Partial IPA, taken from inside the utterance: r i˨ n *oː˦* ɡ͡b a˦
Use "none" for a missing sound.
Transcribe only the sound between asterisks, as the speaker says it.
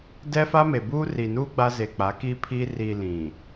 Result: uː˦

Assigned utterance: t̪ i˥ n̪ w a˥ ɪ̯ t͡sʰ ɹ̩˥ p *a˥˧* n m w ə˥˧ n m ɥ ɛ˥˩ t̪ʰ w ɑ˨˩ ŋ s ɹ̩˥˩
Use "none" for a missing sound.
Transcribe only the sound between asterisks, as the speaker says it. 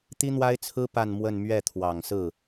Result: a˥˧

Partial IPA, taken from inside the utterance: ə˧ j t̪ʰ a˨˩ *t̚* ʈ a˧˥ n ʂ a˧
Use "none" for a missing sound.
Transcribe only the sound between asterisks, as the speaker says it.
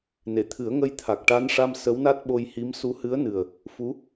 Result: k̚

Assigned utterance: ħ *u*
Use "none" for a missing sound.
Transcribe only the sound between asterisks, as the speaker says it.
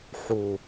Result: u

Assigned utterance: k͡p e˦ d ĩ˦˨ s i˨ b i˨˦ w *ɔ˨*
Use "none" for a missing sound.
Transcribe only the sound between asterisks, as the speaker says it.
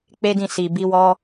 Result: ɔ˦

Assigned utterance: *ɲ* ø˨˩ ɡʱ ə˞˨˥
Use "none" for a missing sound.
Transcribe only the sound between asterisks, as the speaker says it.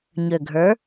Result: ɲ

